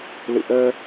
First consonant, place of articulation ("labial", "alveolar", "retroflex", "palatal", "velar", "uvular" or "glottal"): alveolar